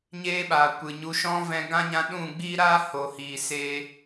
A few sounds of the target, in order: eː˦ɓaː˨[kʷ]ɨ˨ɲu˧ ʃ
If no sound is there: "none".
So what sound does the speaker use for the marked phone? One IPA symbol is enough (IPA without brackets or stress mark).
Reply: kʷ